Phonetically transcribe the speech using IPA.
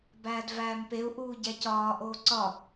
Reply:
bæːdvæːmpeu̯ ʔuːɟæcɒː ʔoːǀɒ

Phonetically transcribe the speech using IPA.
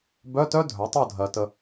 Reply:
bœ˧˥˧tœ˦˥ dʱœ˩˥tˤo˥˨dʱɜ˨ tə˨

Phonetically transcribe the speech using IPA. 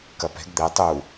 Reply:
kɐpɛ̤ɡ d̪ɛ tˤu

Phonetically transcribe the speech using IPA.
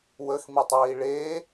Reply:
wəxmitˤiː ɭe

